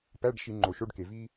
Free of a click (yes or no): no